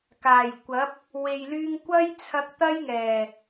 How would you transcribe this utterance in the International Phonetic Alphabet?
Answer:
k aː˨˩ j kʷ ɐ˨˥ p̚ | w e˨ j l yː˧ ŋ kʷ ɐ˥ j t͡sʰ ɐ˧ k̚ t̪ ɐ˥ j ŋ ɛː˨˩

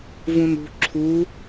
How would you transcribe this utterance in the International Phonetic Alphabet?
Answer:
v ũ n ṳ ǁʰ u

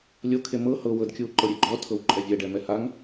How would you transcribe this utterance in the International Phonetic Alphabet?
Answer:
lʲ o kʰ e m ɤ h ɤ w ɤ d kʲ u ǃ ɤ ɾʲ e ɡ͡ǃ ɔ tʰ ɤ w ǃʼ ɛ vʲ ɛ ɖ ɛ m ɛ h a ŋ

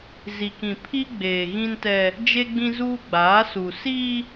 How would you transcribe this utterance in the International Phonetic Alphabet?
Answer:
z i˨ k ĩ˨ pʰ i˦ ɡ͡b eː˨ ɣ ĩ˦ n t ɛ˦ | d͡ʒ e˦ ɡ͡b ĩ˦ z uː˦ ɡ͡b aː˨˦ s u˨ s iː˦

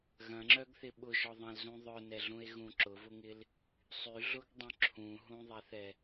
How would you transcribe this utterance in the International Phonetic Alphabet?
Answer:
ɣ ɐ̃ ŋ͡ǁ œ ɡ θ ɪ ɓ ʊ ʒ ɔ ðˤ ɐ̃ l z ũ ðˤ œ n ɛ ɮ ũ e̯ ɣ ũ ǁ ʊ v ʊ ŋ ɪ l | sˤ y ɮ ʊ ɡ dˤ œ̃ ǁʰ ũ ɦ ũ ðˤ ɛ θ ɛ

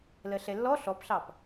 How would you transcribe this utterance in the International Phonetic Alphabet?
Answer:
l ɜ ɬ ɛ lː ɔ ɬ ɔ p ɬ ɑ p

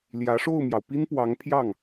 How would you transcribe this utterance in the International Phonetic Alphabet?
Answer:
l j ä˧˥ ʂ o˥˩ ʊ̯ m j ɑ˩ ʊ̯ p i˥ n p w ɑ˧˥ ŋ pʰ j ɑ˥˩ ŋ

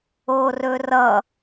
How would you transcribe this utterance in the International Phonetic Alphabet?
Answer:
o r ɵ r ʌ

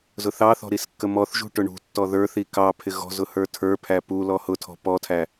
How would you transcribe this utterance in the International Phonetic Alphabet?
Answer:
z ʊ θ ɑ θ ɔ̤ ɾ i s kː ə m ɔ θ ʒ ṳ ʈ ʊ ɳ ṳ tː ɔ ð ə˞ θ i k ɑ pʰ ɪ ɣ ɔ̤ z ʊ h ə˞ tʰ ə˞ pʰ æ p u l ɔ h ʊ tʰ ɔ̤ p ɔ tʰ æ

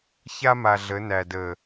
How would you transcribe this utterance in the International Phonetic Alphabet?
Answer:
ç a˦ m a˨ ɮ ə˨˦ n æ˨ d ə˨

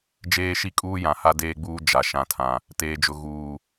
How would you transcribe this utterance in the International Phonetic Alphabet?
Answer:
d͡ʒ eː˦ ʃ i˦ kʼ uː˦ j ã˨ h a˦ d eː˦ ɡ͡b uː˦ d͡ʒ a˨ ʃ ã˨ tʰ ã˨ | t eː˨ d͡ʒ ʊ˨ ɣ uː˨

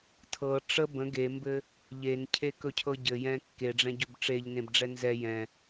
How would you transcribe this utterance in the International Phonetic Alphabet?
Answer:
tʰ ɤ ʈ͡ʂ ə b ə̃ ɡ e m b ɘ | ʎ e n cʰ e k ɵ cʰ ɤ ɟ ɘ j ɛ̃ kː e ɖ͡ʐ ɛ̃ ɟ ɵ b ʈ͡ʂ e ʎ n ẽ b ɖ͡ʐ ɛ n z ɛ j ɛ̃

